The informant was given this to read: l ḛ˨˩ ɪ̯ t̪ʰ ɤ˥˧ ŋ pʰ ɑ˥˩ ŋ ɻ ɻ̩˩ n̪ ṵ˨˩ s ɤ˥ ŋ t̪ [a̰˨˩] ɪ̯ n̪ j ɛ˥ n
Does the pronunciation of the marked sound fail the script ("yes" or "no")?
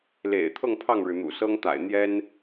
no